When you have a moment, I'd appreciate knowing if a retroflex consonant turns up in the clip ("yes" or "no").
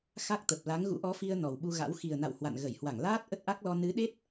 no